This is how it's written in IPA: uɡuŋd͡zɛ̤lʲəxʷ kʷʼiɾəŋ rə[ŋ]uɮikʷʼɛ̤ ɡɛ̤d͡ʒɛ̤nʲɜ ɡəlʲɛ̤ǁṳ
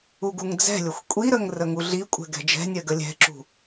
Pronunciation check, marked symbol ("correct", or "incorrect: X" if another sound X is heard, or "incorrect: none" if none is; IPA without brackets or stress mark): correct